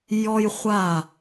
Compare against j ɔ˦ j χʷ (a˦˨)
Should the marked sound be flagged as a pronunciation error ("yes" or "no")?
no